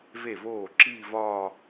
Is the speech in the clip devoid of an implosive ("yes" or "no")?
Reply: yes